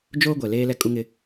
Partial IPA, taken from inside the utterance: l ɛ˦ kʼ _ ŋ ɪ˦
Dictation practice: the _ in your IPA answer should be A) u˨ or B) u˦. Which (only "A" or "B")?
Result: B